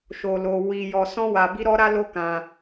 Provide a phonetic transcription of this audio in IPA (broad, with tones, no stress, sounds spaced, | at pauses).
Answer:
ʃ o˧ l o˧ w i˧ j ɔ˧ s ɔ̃˦ w a˧ b i˦ ɾ ɔ˦ ɾ a˦ l o˦ k ã˧